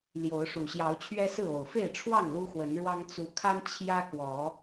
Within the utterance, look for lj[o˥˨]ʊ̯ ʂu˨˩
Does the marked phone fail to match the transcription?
yes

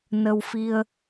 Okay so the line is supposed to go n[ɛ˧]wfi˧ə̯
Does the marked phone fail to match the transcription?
yes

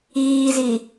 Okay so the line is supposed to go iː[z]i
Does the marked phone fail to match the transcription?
no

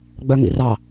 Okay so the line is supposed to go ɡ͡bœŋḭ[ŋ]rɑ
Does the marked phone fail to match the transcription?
yes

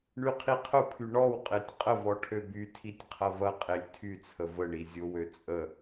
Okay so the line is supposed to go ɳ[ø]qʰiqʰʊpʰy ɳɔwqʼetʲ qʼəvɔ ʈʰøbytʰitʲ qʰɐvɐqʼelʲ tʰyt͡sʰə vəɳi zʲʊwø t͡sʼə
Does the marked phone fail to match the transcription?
yes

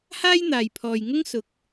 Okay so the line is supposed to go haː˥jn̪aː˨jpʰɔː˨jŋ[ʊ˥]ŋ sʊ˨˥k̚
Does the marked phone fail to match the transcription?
no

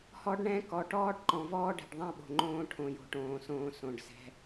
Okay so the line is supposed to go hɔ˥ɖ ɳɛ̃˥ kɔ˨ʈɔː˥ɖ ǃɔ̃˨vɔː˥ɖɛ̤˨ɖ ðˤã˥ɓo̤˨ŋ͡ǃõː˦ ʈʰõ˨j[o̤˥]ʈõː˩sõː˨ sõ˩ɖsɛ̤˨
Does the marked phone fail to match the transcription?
yes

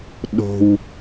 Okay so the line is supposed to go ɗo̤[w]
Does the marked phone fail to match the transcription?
no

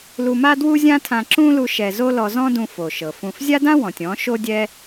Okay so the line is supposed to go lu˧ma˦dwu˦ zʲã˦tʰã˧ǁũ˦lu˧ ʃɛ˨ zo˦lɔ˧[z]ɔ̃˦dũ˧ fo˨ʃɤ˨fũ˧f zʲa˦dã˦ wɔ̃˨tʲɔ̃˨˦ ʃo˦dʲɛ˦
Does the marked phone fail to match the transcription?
no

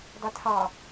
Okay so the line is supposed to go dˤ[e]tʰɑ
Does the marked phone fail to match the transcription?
no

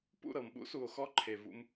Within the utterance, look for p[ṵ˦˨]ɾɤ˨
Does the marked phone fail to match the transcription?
no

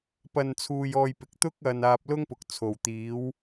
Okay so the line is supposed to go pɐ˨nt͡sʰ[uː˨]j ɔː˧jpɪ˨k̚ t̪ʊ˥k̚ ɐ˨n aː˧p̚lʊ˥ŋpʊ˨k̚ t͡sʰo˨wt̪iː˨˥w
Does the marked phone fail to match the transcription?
no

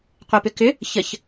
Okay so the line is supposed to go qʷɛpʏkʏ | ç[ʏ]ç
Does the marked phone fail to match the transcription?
yes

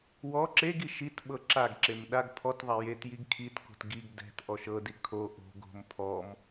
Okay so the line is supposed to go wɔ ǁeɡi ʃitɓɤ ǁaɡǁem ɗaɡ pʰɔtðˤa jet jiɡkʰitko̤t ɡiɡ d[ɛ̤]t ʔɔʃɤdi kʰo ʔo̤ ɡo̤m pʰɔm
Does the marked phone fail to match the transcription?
no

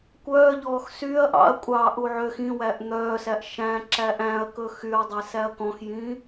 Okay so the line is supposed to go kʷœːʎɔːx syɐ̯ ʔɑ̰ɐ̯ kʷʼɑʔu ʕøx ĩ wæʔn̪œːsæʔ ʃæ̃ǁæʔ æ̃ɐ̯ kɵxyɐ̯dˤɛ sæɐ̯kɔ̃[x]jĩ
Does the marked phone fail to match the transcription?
no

